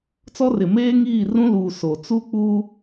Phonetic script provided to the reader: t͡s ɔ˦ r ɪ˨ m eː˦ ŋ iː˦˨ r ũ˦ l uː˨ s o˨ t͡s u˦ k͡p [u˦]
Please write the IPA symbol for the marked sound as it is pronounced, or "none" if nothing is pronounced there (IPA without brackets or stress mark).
u˦